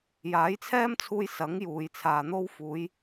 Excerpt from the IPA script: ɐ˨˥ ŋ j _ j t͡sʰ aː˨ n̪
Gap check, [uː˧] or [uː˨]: uː˨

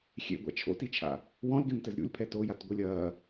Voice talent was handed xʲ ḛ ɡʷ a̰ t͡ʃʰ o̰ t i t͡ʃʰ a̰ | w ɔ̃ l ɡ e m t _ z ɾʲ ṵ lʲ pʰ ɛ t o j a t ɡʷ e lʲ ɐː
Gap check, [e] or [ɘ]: ɘ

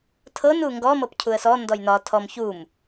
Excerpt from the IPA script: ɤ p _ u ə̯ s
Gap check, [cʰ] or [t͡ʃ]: cʰ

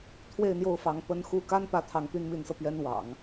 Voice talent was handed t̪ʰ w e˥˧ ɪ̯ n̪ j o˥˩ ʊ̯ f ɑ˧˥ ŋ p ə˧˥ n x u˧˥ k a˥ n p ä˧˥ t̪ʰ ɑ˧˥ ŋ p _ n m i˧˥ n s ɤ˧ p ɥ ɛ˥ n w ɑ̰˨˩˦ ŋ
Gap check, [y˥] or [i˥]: y˥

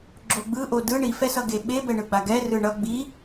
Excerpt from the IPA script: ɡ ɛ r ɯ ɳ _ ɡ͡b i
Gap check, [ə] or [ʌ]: ʌ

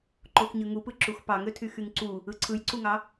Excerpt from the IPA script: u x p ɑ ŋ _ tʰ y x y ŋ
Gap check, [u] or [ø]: ø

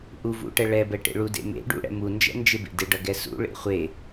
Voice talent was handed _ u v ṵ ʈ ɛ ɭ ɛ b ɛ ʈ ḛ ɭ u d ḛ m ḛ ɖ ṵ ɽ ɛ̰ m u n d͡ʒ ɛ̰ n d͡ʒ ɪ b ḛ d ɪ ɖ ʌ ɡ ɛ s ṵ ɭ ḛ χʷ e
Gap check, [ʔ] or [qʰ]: ʔ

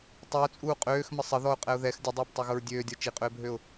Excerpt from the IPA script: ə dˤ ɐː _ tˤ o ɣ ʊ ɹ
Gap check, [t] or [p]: p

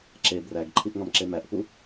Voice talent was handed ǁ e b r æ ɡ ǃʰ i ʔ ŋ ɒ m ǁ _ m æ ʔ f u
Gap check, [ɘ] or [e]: e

